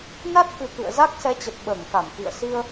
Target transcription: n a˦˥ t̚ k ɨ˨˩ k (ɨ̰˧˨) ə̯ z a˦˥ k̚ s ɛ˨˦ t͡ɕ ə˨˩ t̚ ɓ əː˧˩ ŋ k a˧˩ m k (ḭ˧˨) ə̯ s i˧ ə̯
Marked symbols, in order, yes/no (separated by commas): yes, yes